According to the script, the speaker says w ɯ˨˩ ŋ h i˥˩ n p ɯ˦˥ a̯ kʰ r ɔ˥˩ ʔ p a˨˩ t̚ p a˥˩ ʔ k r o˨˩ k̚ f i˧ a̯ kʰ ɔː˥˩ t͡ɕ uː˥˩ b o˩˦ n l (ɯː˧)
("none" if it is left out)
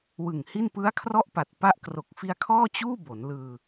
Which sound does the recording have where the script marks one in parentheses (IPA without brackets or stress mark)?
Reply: ɯː˧